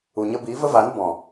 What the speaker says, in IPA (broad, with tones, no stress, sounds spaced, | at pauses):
u˨ ɲ ə˧ b iː˨˦ v ə˦ v aː˨˦ n b ɔ̃˨